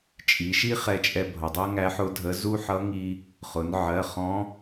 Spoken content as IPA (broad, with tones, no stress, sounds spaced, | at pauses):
t͡ʃʼ i˩˧ ʃ i˥ χ ɛ˧ t͡ʃʼ ɛ˧ bʱ ʌ˩ dˤ ɜ˥ ŋ æ˧˥ ħ ʊ˧˥ dʱ ə˧˥ z u˥ ħ ʌ˧˥ ŋ i˧ | χ ʊ˩˧ n ʕ ɜ˩˧˩ χ ɔ̃˧˥